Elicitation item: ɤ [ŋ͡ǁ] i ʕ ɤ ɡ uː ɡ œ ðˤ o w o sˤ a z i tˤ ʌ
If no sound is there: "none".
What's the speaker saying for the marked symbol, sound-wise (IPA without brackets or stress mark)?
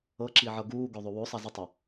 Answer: ǁ